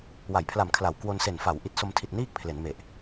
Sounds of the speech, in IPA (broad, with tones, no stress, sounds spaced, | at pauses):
w a˩˦ j pʰ l a˨˩ m kʰ l a˨˩ w k w o˧ n s e˨˩ n f a˩˦ w ʔ i˨˩ t̚ s o˧ m tʰ i˨˩ t̚ n iː˥˩ k̚ pʰ l e˩˦ n m e˨˩ ʔ